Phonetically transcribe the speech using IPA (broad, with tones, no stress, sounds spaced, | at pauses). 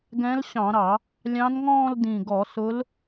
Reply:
ɡ ɛ̃˧˥ l ɕ ɑ̃˧˩˧ ɾ ɑ˧˩˧ | lʲ ɑ̃˧˥ n ŋ ɔ̃ː˥˧ l d ĩ˨˩ ɡ ɔ˧˩˧ s ʊ˧˥ l